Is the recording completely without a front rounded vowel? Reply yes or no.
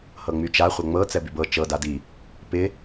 no